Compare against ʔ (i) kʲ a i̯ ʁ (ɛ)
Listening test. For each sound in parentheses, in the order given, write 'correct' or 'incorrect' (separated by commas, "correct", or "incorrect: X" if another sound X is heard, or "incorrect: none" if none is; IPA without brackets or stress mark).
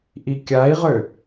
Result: correct, incorrect: ø